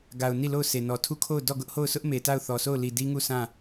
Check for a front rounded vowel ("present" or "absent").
absent